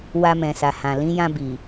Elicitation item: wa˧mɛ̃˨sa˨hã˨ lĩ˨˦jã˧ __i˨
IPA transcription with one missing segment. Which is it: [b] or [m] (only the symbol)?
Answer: b